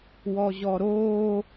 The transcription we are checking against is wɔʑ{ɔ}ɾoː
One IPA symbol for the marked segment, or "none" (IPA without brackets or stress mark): ɔ